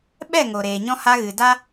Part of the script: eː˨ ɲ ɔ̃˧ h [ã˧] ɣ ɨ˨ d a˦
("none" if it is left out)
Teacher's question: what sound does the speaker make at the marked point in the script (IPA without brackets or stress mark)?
a˧